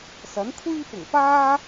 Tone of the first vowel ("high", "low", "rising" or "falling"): rising